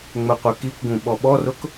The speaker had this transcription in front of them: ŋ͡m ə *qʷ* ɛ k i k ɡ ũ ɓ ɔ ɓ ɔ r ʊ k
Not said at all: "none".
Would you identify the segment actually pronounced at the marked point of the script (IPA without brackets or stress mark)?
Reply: qʷ